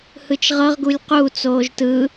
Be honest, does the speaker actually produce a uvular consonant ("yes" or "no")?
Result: yes